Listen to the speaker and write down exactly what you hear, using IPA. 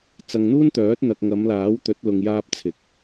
t͡sɐ˨ŋn̪uː˥nt̪œː˨˥t̚ n̪ɐ˨k̚ ŋɐ˨˧mlaː˨˥wt̪ɵ˨˥t̚ lʊ˧ŋjaː˥p̚t͡sʰɪ˨˥k̚

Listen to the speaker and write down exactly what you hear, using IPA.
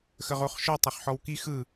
xəʁoχʃɔ tˤoχħɔwki xɯ

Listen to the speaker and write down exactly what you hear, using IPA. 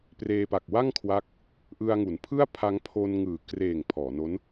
preː˧ pa˨˩k̚wa˥˩ŋkʰwa˦˥k̚ | ʔɯ˧a̯ŋu˩˦npʰɯ˥˩a̯pʰa˦˥ŋ pʰo˧nŋɯː˨˩kreː˨˩ŋ pʰɔː˩˦no˦˥n

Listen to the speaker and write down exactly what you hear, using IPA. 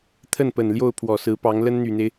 t̪ʰə˥˩npə˨˩n ljo˥˩ʊ̯ pʰwɔ˨˩sɹ̩˧˥pɑ˧˥ŋ lə˥nn̪y˨˩n̪e˦ɪ̯

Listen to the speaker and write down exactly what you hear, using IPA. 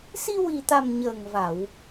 si˧ wi˨˩t̪a˨˩m ɲəː˨˩ŋva˨˩˨w

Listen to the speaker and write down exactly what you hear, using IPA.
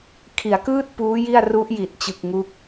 kʰi˩˦a̯kɯː˥˩t̚ puː˦˥ ji˥˩a̯ru˦˥ʔji˨˩t̚ t͡ɕɯ˨˩k̚ ŋu˥˩k̚

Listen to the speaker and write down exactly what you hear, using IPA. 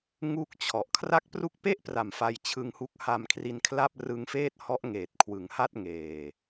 ŋu˥˩k̚t͡ɕʰɔ˨˩ʔ kʰra˦˥k̚pru˦˥k̚pe˥˩ʔpra˨˩m fa˧jt͡ɕʰɯ˧ŋhu˦˥k̚ha˧m kʰri˧nkʰla˥˩p̚ rɯ˧ŋfeː˥˩t̚hɔ˦˥ʔ ŋeː˨˩t̚kʰwɯ˩˦ŋha˥˩t̚ŋeː˨˩

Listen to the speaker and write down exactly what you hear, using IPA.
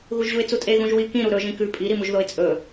ɣuʒʑuɪ̯t͡sutʼe ɣũʒwi kĩ ɾuɾɵ ʒĩkʉ pʼi ɾimuʒðoɪ̯t͡sʼɵ

